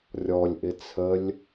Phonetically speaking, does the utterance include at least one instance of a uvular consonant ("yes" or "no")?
no